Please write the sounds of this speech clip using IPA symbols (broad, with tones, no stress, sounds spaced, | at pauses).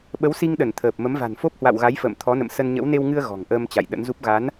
ɓ ə˨˦ w s i˧ ŋ ɗ ə˧˩ n t̪ʰ əː˨˩ p̚ m ə˨˦ m v a̤˨˩ n f o˦˥ p̚ h w a̰˧˨ w ɣ a˨˦ j f ə̰ː˧˨ m t̪ʰ ɔ˨˦ n ə̰˧˨ m s ə˧ n ɲ ə̰˧˥ w n e˧ w ŋ ɨ˧ ə̯ ɣ ɔ̤˨˩ ŋ ʔ əː˧ m t͡ɕ a̰˧˨ j ɗ ə̰˧˥ n z u˦˥ p̚ ɣ a˨˦ n